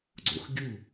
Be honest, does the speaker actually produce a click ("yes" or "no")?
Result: yes